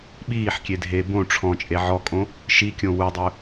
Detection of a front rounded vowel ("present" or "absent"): absent